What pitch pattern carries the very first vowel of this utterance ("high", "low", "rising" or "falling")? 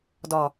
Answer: low